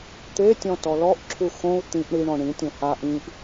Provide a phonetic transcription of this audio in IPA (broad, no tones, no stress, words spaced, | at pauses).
t̪etʲɔ̃ tɔlɔʔǁʰu xõu̯ t̪ĩʔ ɳiɳɔ̃ ɳĩtʲõ ha ʔĩʔ